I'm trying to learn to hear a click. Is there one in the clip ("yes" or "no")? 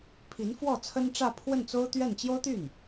no